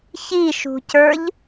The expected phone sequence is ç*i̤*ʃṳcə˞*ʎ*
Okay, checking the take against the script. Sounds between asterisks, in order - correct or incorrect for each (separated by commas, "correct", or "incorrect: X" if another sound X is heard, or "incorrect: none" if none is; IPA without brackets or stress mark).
incorrect: i, correct